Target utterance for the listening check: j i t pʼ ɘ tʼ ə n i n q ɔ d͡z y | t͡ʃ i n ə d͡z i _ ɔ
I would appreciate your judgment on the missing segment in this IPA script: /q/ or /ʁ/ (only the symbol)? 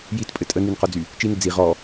ʁ